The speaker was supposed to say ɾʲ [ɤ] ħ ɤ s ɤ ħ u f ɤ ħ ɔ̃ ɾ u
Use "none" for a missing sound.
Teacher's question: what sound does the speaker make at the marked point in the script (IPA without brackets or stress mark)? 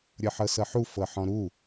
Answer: ɤ